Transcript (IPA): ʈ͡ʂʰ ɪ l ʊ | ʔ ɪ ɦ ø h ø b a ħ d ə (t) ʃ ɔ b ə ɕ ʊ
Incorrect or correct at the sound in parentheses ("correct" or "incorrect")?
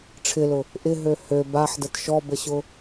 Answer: correct